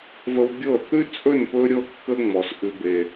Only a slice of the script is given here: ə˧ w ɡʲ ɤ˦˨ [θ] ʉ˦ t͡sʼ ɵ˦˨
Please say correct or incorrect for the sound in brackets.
correct